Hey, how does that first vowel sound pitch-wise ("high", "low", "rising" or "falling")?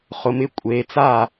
low